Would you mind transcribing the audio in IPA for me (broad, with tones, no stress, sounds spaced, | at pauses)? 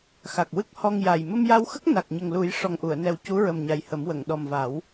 x a˨˩ k̚ w ɨ˦˥ k̚ h ɔ˧ ŋ j a˨˩ j m ə˧ m j a˧ w x ə˦˥ k̚ n a˨˩ k̚ ɲ ə˨˩ ŋ l u˨˩˦ j ʂ ɔ˨˩ ŋ ʔ u˨˩˨ ə̯ n ɛ˨˩ w c u˧˥ ɹ ə˨˩ m ɲ a˨˩ j h ə˨˩˦ m w ə˨˩˨ ŋ ɗ ɔ˨˩ m v a˨˩˦ w